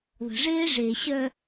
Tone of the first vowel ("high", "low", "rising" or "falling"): low